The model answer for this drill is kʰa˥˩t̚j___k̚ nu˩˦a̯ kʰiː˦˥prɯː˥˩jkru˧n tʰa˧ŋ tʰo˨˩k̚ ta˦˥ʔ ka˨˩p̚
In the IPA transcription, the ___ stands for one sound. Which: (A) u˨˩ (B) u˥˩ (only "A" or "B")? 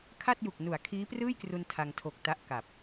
A